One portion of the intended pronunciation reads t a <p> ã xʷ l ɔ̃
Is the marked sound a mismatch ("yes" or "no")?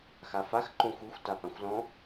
no